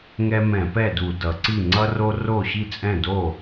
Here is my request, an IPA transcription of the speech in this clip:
ŋ ɛ˦ m ɛ̃˧˩˧ p ɛ˥˩ d u˧˩˧ d ʌ˩˧ ǀ i˥˩ ŋ͡ǀ ʌ˦ r o˦ r o˥˩ ɕ i˥˩ t͡sʼ ɛ̃˥˩ d o˥˩

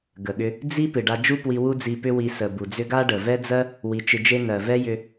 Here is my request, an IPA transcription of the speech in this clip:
ɡ ə˨ ɠ ʏ˧ | d͡z i˦ p ɨ˨ ɖ a˧ d͡ʒ u˦ p w i˧ w u˦ d͡z i˧ p ʏ˦ w i˧ s ə˨ b u˨ d͡z ʏ˦ ɡ a˦ ɖ ə˨ v ɛ˦ d͡z ɜ˦ | w i˧ t͡ʃ ɨ˧ d͡ʒ e˦ n ɜ˨ v ɛ˦ j ʏ˧

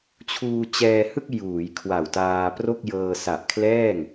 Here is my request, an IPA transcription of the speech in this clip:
t͡ɕʰ uː˧ t͡ɕ ɛː˧ h ɯ˥˩ k̚ j uː˩˦ j kʰ w a˨˩ w t aː˧ p r o˥˩ k̚ j ɤː˧ s a˨˩ ʔ kʰ l ɛː˥˩ ŋ

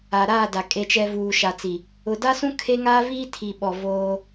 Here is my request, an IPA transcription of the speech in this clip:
a˨ ɾ aː˦˨ d a˨ kʼ e˨ t͡ʃ ɛ˨ v uː˨ ʃ a˨ t͡s i˨ | ʊ˨ d a˦ s ũ˦ kʰ e˦ ŋ aː˦ v iː˦ tʰ i˨ ɓ ɔ˨ v oː˦

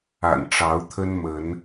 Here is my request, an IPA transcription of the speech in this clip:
a̰˨˩ n ʈ͡ʂ ɑ˨˦ ʊ̯ t̪ʰ ə˦ n m ə˨˦ n

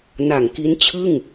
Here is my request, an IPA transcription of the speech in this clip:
n a˨˩ ŋ k i˦˥ n t͡ɕʰ ɯ˥˩ ŋ

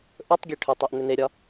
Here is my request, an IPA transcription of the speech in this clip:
ʔ ɵ tˤ ɡʲ e ʈʰ ʏ tˤ e ʔ n̪ ʏ n e ɾʲ ɒ

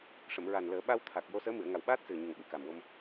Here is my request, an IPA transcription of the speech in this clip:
ʂ ə˨˩˨ m ɹ a˨˩ n l əː˨˩˦ ɓ a˧ w t̪ʰ a˨˩ k̚ j o˧ s əː˧˥ m ɨ˨˩˨ ə̯ ŋ a˨˩ w ɓ aː˦˥ t̚ s ɨ˨˩ ə̯ ɲ ə˨˩ ŋ ɓ ɨ˨˩˨ k a˨˩ m w o˧ m

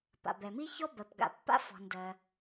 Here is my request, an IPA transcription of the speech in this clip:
p a̰˩ b ɛ˩ m i˥ ç ɔ˥ b ɜ˩ p ɡ a̰˩ pː a̰˥ f ɔ̤˩ n d ɜ˩

